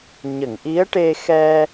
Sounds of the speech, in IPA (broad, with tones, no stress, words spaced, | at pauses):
ɲə˨˩˨ŋʔi˧˥ə̯ʈe˧xɛ˧